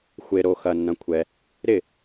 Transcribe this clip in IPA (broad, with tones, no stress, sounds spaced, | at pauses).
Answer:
xʷ e˨ ɾ o˨ x ɐ˨ nː ɐ̃˨ kʷʰ ɛ˨ | ɾ ɪ˥˩